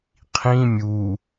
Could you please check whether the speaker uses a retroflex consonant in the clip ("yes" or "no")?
no